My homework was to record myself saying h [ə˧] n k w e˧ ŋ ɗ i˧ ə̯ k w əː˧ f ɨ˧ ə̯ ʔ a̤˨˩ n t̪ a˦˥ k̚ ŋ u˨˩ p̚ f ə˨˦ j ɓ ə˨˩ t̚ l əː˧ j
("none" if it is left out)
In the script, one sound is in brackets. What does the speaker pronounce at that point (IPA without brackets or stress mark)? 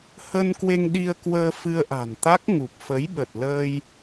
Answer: ə˧